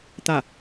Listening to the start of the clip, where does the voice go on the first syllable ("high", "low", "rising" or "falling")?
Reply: falling